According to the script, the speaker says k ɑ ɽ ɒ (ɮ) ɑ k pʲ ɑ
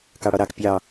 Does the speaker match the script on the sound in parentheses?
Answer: no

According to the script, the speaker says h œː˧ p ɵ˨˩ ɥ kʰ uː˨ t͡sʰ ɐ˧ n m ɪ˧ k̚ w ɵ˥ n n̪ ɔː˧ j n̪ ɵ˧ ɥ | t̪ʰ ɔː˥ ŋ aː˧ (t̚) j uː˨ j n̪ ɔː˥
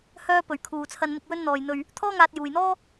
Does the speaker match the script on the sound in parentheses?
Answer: yes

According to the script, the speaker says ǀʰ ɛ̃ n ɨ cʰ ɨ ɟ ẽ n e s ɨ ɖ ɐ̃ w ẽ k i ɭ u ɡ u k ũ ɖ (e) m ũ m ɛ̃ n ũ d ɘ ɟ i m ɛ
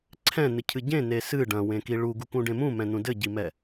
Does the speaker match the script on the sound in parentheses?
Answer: no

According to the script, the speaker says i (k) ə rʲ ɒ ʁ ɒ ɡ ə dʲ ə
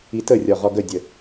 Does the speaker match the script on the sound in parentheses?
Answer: no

